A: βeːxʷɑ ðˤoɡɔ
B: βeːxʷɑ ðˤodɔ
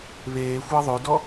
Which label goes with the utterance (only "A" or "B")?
B